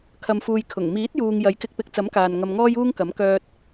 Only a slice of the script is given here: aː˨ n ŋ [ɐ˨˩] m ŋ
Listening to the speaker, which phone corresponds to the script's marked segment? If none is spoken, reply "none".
ɐ˧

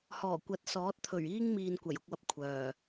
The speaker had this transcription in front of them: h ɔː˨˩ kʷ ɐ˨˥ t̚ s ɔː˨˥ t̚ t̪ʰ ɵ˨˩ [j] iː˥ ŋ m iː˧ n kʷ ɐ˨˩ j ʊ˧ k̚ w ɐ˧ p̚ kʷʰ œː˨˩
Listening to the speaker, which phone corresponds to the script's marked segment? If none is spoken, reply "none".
ɥ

